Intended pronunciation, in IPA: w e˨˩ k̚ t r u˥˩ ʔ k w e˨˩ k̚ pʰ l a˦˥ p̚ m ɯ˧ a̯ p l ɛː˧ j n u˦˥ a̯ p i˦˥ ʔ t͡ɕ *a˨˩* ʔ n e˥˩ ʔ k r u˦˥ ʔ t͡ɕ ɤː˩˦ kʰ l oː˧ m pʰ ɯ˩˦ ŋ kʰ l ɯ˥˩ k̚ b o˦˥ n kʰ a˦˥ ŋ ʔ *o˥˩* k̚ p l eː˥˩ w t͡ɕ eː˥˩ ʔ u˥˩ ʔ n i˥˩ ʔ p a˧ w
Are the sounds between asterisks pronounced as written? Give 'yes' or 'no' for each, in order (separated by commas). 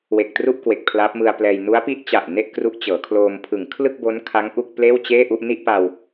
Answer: yes, no